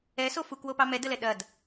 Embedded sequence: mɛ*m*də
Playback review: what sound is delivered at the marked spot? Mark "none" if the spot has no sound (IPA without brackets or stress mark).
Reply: none